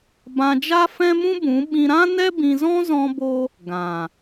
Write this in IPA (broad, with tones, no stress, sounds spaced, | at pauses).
b ã˧ d͡ʒ a˦ f ɛ̃˦ m ũ˦ b ũ˨˦ ɓ ĩ˧ ɾ ã˦ n ɛ˦ b ĩ˧ z ɔ̃˦ z ɔ̃˦ b o˦ | ɡ ã˨